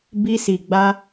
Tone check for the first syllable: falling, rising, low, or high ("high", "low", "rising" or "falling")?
high